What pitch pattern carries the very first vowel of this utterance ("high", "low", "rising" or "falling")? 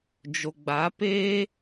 low